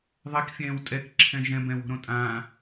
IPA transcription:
ðˤ e k fʲ ɛ̃ː w tʼ ɛ k ǁʰ ɛ̃ ʒ ɛ̃ b ɛ̃ w o̤ ɾ õ tʼ ãː

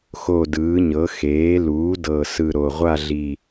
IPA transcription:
x o˦˨ d ɯː˩˥ ɲ ɤ˩˥ x eː˩˥ l uː˩˥ d ɤ˨˩ s ɯ˨˩ ɾ o˨˩ ʁʷ a˦˨ ɮ i˨˩

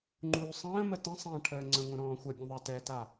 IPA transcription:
ŋ͡ǃ uː sˤ ə̃ː m ə t ə̃ sˤ ɐ̃ː ʈʰ əː ŋ͡ǀ ə̃ ŋʷ ə̃ ɾ ɔ̃ː xʷ ə bʲ ə̃ ðˤ a t ɛ t a

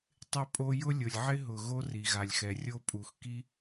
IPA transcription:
tˤ ɪ˦ pʼ o˦ j ʊ˦ lʲ ʊ˩ lʲ ʕ ɪ˦ ɦ ʊ˩ ɣ o˦ r i˩ ɣ a˩ lʲ x ɛ˩ rʲ o˦ pʼ u˩ x k i˦

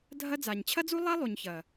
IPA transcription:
dʱ ɐ˦ d͡z a˨ ɲ t͡ɕʰ ɐ˦ d͡z u˦ lˠ a˦ lˠ u˨ ɲ ç ɐ˨

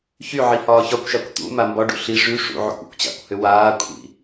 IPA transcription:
ç y ʕ i h ɒː ç ɒ kʷ ʃ a kʷ t̪ ṵ m a m b ɒ ɖ ṵ ɬ i ʐ y ʂ ṵ ʕ ṵ kʷ ṵ kʷ t͡ɕ a̰ kʷ h ʏ w aː kʷʰ ḭ

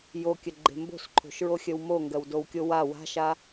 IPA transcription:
j o kʲ ə ɡ͡ǃ e̤ m b o̤ s ǃʰ o̤ ʃ ɹ o xʲ ə w m o ŋ ɡ ɜ w d o w kʲ o w a w a̤ ʃ a

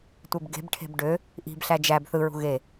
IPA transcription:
tʷ e b ɡ e̤ b ʈʰ e̤ b ɖ ø | ʔ i̤ b ɬ æ d͡ʒ æ b θ ɯ ɹ ṳ ɣ e

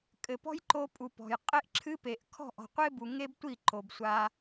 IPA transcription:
kʼ ɘ˨ p ɔ̤˦ j ǃ o˧ pʼ u˨ p ɔ̤˨ j qʼ e˦ ʔ ǁʰ ɨ˦ p e˨ ʔ kʰ ɔ̤˦˨ ʔ ɔ̤˨ qʷ e˦ b u˨ ŋ e˦ b tʷ i˦˨ ǃ o˨ b sʷ a˧

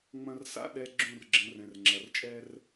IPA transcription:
ŋ͡m ɐ̃˦ r s a̰˦ ɗ ɛ˦ ɡ͡ǁ ũ˦˨ r ɡ͡ǁ ə̃˨˦ r ɛ̃˨ r ŋ͡ǁ ɐ˨ r t͡ʃʼ ɛ˦ r

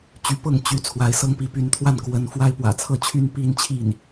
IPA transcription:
t͡ɕ y˧˥ p ɤ˥˩ ŋ t͡ɕ y˧˥ t͡sʰ w a˧˥ ɪ̯ s ɤ˥ ŋ p i˧˥ p y˧˥ n t̪ʰ w a˥˩ n k w ə˧˥ n f w a˥ ɪ̯ p w ä̰˨˩ t͡sʰ ɤ˥˩ t͡ɕʰ y˥ n p i˥˧ n t͡ɕʰ i˥˩ n

